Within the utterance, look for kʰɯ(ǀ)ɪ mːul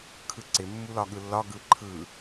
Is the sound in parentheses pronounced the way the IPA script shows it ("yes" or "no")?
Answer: yes